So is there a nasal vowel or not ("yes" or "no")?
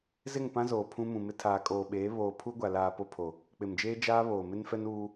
yes